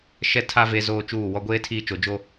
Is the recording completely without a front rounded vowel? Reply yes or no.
yes